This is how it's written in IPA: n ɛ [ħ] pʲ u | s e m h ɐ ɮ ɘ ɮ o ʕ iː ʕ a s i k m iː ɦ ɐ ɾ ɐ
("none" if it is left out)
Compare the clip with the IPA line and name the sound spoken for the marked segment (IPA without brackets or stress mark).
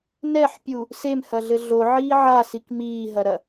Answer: ħ